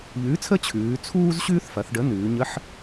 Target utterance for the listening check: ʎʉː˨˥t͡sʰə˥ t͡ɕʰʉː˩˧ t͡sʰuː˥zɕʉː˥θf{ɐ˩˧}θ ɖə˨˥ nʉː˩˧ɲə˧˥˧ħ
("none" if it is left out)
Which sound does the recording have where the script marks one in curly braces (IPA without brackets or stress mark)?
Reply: ɐ˩˧